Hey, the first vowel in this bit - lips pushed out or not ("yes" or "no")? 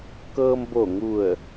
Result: no